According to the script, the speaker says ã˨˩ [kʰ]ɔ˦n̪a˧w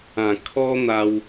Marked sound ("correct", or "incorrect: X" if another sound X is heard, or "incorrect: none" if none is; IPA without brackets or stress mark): correct